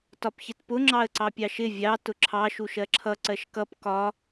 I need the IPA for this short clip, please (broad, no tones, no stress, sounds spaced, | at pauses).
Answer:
t ɒ p ç ɪ t p ʊ ŋ͡ǁ ɑ ə̯ ǀ ɑ pʲ ɑ ʃ ɪ vʲ ɑ t ʊ ǁʰ ɑ ʃ u ʃ ɜ ǁʰ ʌ ǀ ɜ ʃ k ʌ p k ɒ